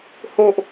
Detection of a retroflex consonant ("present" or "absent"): absent